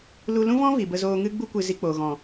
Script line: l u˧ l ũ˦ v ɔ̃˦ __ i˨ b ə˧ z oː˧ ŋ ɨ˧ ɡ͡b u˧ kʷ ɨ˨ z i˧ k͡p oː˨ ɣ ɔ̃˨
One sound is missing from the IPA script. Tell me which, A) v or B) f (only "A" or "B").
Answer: A